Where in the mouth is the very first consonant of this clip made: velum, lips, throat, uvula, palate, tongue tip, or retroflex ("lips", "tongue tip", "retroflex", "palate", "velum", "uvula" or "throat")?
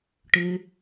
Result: retroflex